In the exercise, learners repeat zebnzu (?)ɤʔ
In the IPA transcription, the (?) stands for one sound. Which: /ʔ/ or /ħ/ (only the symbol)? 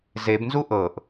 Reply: ʔ